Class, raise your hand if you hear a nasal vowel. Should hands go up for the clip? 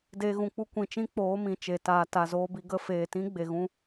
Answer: yes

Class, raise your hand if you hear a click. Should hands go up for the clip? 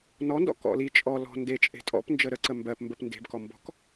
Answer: yes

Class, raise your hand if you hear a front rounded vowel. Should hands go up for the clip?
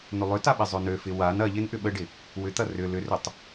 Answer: yes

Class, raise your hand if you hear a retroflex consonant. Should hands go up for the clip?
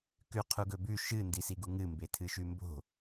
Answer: no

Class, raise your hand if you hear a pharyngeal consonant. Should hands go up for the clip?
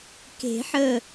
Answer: yes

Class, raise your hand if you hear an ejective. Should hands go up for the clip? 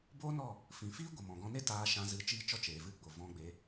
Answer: no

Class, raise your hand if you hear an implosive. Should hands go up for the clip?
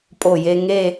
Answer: no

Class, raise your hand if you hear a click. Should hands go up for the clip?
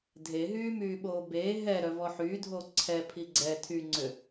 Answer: yes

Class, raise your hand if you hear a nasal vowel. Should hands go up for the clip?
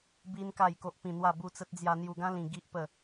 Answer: yes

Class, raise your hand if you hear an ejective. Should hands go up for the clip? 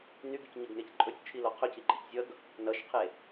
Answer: yes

